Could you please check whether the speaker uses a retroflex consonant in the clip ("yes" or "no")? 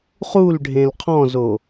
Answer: yes